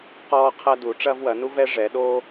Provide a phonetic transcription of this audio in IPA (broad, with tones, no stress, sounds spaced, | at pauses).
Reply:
q ɔː˥ qʰ ɐ˥ d u˩˥ ʈ͡ʂ ɐː˥ v w ɐ˩˥ n u˥ v ɛ˥ ʐ ɛ˩˥ ɗ o˥